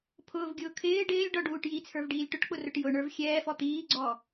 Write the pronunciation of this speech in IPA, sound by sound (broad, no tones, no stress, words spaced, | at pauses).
pʰʊːvɡʲʊː kʰɪː ɖɪːlʲɖɔɖuːʈ jit͡sʰə˞vɖiːlʲ ʈʊʈk͡pʊrʊʈ jʊɳə˞v xʲɛːfɔ t̪iːɡ͡ǀɔ